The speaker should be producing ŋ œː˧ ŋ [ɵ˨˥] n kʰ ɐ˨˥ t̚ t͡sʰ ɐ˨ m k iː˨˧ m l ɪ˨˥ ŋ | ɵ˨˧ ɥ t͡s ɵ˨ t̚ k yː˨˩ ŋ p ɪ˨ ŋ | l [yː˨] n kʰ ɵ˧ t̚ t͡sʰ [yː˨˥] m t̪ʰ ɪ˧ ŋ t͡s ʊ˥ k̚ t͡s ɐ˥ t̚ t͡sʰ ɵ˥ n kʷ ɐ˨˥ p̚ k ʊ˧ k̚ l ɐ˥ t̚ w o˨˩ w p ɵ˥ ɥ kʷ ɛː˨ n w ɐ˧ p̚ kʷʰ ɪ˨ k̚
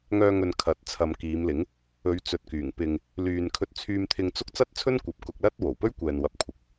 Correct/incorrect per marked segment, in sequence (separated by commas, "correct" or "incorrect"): incorrect, correct, incorrect